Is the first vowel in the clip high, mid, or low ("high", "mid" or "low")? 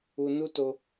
high